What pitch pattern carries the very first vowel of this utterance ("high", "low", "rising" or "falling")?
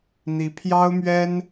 rising